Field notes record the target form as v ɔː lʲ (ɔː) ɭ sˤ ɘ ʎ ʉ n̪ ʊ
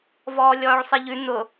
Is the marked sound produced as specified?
yes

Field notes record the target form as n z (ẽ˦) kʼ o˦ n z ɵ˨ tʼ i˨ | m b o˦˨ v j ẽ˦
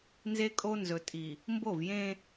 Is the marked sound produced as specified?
no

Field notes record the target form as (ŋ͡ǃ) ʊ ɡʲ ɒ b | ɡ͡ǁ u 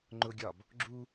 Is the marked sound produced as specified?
yes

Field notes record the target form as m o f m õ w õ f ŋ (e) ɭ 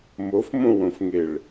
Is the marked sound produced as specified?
yes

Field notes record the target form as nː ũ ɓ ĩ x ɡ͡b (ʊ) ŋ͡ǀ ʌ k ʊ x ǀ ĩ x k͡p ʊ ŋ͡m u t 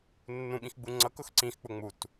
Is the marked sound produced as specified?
no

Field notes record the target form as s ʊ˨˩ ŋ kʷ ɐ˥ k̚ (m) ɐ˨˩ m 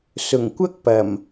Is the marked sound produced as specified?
no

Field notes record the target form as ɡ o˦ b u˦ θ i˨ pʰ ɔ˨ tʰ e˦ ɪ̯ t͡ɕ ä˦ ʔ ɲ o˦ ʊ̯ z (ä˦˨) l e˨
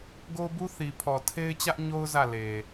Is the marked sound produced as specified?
yes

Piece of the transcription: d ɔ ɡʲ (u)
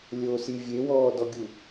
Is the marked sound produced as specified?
yes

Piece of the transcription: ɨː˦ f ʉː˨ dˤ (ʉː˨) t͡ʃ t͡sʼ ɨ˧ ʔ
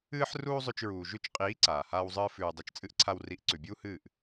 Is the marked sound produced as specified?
no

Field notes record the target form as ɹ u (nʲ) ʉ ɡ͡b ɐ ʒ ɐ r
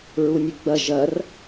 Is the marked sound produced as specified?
yes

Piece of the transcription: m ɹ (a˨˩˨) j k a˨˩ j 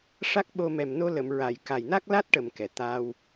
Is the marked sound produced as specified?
yes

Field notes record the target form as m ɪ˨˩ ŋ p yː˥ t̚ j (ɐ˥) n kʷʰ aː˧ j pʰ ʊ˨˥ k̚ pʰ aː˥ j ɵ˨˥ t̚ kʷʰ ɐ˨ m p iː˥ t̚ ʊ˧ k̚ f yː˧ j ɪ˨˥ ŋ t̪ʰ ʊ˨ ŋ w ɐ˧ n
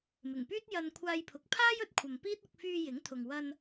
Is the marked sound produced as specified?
no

